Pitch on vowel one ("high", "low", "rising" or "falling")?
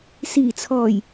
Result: low